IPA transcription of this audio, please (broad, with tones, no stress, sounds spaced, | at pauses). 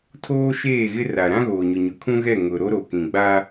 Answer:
tʰ oː˦ ʃ eː˦˨ ɣ ɪ˦ r a˨ ɾ ã˦ ɣ oː˨ ɲ ʊ˨ ɲ ʊ˨ kʰ ũ˦ ɣ ɛ˦˨ ŋ ʊ˨ ɾ o˦ ɾ o˨ k ĩ˨ ɡ͡b a˦